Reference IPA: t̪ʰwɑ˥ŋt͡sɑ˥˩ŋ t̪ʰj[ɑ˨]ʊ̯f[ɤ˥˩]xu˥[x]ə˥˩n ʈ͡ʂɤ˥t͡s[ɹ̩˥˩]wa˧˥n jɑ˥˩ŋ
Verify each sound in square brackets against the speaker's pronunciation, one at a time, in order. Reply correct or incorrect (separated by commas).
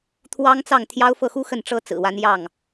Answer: incorrect, correct, correct, incorrect